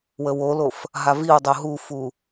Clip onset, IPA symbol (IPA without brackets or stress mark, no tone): w